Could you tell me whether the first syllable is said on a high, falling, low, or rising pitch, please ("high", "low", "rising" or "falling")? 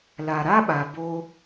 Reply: low